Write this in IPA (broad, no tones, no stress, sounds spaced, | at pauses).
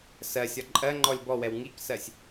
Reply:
s ɜ sʲ ɒ ǃʼ ɜ ŋ͡ǃ ɔ lʲ b ɔ w ɛ w ŋ i k s ɜ sʲ